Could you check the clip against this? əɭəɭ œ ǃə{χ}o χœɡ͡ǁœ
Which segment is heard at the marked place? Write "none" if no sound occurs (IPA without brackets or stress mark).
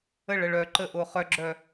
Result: ʔ